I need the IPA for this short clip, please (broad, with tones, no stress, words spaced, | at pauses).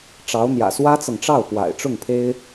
ʈ͡ʂɑ˧˥ʊ̯n̪jä̰˨˩ swä˥t͡sɤ˨ŋʈ͡ʂɑ˥˩ʊ̯ pwa̰˨˩ɪ̯ʈ͡ʂʊ˥˩ŋpʰe˥ɪ̯